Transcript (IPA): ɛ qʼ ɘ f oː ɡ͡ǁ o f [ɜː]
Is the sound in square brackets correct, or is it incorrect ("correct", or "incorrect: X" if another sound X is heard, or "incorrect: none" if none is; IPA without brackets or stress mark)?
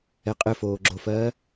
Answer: correct